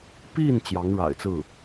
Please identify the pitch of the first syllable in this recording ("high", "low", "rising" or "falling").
falling